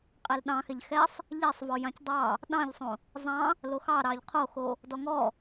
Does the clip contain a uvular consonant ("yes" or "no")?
yes